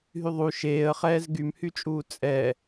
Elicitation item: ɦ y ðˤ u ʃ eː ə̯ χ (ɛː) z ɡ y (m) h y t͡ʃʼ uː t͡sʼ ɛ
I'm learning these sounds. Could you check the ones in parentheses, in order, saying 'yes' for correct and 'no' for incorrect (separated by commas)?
yes, yes